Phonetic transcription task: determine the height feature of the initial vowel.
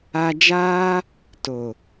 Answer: low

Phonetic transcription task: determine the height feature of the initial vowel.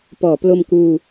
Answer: mid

